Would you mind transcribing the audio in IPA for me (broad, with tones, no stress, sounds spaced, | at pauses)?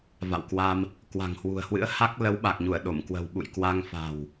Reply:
v a̰˧˨ w k w a˧ m | k w a̤˨˩ ŋ h w ṳ˨˩ ə̯ h w ɨ̰˧˥ ə̯ h a˦˥ k̚ l ə˨˦ w ɓ a˨˩ k̚ ɲ u˧˩ ə̯ ɗ o˧˩ m k w ə̤˨˩ w ɓ ṵ˧˨ j k w a˧ ŋ f a̤˨˩ w